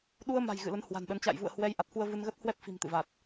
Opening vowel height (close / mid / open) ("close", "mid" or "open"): close